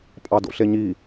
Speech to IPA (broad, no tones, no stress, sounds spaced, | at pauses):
pʼ ɑ d o̰ ɬ e ɲ i